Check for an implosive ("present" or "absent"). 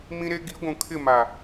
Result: absent